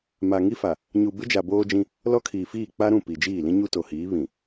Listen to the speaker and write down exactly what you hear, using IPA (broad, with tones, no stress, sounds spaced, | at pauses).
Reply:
m a˨ ŋ i˦ f a˨ | ɲ u˨ b ɪ˦ d͡ʒ a˨ b oː˦ d͡ʒ ĩ˦ | l ɔ˦ kʰ iː˨ f iː˦˨ k͡p a˦ ɾ ũ˦˨ p i˨ d͡ʒ iː˦˨ l ĩ˦ ɲ u˦ t o˨ h iː˨˦ β ĩ˨